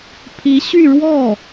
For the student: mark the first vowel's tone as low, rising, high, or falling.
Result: rising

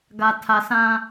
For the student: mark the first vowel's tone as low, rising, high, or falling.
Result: low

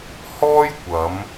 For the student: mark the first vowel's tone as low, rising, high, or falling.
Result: high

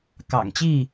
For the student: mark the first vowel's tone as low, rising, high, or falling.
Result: low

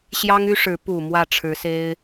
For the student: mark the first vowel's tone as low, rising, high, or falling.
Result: high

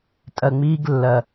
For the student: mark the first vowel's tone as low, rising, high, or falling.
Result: low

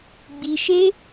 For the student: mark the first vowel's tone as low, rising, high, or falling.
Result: low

